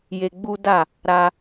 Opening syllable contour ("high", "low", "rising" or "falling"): high